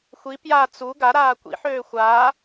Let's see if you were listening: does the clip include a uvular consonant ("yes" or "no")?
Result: no